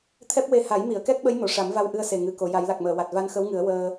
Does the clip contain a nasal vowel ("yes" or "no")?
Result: no